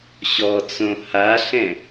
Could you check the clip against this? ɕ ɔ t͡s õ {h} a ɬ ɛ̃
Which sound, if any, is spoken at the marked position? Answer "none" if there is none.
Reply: h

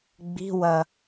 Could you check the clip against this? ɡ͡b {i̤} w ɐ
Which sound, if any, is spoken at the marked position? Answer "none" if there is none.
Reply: i̤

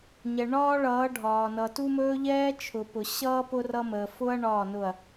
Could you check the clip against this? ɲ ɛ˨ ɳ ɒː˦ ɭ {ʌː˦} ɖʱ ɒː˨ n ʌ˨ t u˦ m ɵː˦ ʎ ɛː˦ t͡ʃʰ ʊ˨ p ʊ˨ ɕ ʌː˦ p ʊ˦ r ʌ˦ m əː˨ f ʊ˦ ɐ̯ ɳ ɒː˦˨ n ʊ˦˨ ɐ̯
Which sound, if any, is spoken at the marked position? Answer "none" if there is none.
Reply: ʌː˨˦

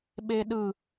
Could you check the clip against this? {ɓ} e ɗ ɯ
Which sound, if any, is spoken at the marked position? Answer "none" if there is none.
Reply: ɓ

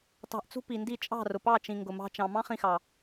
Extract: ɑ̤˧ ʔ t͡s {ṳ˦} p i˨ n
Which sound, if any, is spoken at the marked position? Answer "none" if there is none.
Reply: ṳ˦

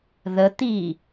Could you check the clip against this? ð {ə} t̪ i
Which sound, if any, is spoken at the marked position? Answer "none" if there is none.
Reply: ə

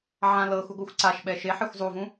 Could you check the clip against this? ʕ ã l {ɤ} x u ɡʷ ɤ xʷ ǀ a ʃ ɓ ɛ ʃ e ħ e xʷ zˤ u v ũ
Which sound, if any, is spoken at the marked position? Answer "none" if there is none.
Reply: ɤ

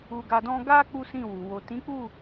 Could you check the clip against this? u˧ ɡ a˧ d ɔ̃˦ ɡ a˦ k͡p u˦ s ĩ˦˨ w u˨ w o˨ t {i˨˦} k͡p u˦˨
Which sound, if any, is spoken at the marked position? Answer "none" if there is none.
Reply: ĩ˨˦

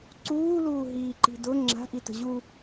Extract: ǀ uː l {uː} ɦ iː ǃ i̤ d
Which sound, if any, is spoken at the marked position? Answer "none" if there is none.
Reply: uː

